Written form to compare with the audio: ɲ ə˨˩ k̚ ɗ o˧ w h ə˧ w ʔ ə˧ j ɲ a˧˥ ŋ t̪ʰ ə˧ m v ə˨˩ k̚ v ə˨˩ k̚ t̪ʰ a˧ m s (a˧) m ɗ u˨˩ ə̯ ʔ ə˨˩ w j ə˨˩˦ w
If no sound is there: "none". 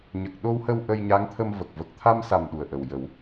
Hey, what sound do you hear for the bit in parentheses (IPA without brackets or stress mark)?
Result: a˨˩